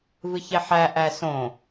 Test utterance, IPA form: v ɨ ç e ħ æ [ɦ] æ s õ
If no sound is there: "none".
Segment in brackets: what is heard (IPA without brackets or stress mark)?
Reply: ʔ